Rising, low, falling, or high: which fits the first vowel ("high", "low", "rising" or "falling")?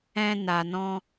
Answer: high